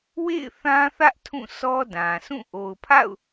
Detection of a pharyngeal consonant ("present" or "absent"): absent